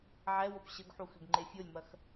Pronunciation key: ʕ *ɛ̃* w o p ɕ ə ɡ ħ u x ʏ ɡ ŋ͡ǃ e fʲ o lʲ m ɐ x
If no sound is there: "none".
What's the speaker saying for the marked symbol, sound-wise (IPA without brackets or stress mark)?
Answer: ɛ